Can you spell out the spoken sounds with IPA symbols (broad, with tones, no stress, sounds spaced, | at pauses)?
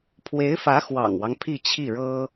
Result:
pʰ w e˧˥ ɪ̯ f ä˧˥ x w ɑ̰˨˩ ŋ w ɑ˦ ŋ pʰ i˥˧ t͡ɕʰ i˥˩ ɻ ɤ˥